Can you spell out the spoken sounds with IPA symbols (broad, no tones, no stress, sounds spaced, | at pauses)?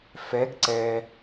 f ɛ ɡ ǀ ɛ